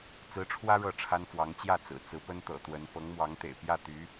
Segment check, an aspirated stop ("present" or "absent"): present